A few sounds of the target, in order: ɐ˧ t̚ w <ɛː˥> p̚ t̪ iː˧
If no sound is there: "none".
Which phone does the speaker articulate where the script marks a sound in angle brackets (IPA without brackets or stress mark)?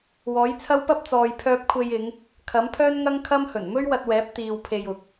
ɛː˨˥